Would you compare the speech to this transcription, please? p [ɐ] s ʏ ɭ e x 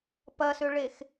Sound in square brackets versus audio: correct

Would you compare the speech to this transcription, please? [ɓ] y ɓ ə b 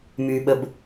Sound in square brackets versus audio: incorrect: m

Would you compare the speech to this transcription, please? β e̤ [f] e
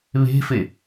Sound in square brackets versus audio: correct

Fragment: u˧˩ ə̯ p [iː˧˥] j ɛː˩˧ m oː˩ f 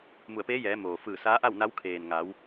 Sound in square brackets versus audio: incorrect: eː˧˥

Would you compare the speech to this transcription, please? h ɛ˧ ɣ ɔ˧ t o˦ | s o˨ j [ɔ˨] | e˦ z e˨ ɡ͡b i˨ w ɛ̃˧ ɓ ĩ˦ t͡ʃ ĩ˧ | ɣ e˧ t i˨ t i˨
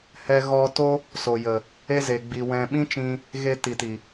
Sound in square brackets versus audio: incorrect: ə˨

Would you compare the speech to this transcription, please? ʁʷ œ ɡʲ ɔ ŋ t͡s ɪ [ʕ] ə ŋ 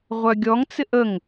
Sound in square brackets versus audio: incorrect: ʔ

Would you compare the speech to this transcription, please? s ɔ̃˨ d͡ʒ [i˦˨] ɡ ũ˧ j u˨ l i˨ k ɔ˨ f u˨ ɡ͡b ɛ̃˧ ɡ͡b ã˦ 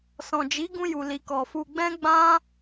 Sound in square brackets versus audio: incorrect: i˨˦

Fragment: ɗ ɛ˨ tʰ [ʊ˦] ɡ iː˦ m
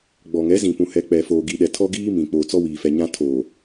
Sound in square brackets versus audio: incorrect: ɔ˦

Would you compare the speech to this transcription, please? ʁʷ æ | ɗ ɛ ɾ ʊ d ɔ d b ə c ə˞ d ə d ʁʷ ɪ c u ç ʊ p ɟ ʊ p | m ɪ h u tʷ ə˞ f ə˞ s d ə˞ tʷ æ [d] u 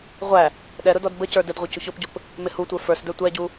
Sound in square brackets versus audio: incorrect: ɟ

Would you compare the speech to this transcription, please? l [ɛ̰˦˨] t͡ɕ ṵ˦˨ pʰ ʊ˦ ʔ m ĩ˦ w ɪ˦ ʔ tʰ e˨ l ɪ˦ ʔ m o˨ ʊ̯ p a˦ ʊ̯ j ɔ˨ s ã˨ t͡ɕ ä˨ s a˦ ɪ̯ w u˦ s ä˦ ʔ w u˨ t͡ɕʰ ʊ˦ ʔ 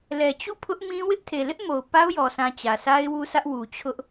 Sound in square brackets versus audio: incorrect: ɛ˨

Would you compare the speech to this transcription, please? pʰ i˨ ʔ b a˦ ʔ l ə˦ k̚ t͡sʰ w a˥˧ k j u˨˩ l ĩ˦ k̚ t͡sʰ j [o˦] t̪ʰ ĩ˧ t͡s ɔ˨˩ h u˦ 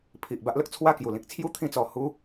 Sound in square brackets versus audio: incorrect: u˦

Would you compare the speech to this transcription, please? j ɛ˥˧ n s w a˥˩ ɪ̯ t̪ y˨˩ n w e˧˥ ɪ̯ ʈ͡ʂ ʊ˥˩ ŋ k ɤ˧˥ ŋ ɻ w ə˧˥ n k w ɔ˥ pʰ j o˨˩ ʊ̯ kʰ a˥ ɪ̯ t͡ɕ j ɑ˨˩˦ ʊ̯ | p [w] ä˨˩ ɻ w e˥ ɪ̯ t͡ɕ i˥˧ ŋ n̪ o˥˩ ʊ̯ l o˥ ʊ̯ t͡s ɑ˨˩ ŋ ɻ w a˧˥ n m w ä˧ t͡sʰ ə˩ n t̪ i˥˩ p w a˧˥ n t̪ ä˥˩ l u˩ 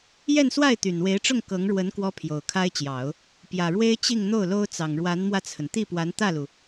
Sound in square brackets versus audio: incorrect: j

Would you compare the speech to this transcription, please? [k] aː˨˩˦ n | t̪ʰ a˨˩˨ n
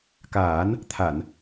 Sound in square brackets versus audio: correct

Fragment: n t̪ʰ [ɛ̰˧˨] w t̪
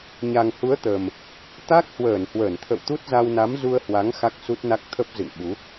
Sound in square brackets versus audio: incorrect: ə̰˧˨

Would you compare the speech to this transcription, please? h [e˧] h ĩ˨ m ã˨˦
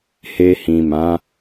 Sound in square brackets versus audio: correct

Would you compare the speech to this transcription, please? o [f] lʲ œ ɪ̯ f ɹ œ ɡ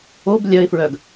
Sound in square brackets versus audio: incorrect: b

